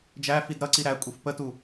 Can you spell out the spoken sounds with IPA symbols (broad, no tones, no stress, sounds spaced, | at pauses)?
d͡ʒ æ f i d ɾ ʌ ǀ i ɾ æ kʷʼ i f p ə t u